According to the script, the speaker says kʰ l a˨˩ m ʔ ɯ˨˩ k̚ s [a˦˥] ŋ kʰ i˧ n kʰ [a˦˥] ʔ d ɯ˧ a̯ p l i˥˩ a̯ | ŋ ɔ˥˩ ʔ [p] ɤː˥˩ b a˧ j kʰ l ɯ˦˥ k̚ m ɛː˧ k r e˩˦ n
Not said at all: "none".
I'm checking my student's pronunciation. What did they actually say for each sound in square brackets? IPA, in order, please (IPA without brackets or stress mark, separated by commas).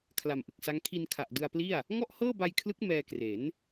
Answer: a˦˥, a˨˩, h